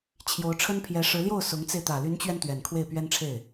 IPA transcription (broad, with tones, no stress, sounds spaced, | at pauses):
t͡ɕʰ j o˧˥ ʊ̯ ʈ͡ʂʰ ə˥ n pʰ j ɛ˧˥ ʂ ɻ̩˧˥ l j o˥˩ ʊ̯ s ʊ˧˥ ŋ t͡s e˧ ɪ̯ t̪ ä˨˩ l y˧˥ n t͡ɕ ɥ ɛ˧ n t̪ ɥ ɛ˨˩ n kʰ w e˥˩ ɪ̯ p ɥ ɛ˥ n ʈ͡ʂʰ e˥˩ ɪ̯